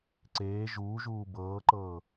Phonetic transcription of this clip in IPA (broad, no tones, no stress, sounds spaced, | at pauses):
ǀ eː ʒ uː ʒ uː b ɤː ǃ ɤː